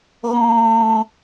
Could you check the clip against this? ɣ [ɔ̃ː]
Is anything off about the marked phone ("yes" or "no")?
no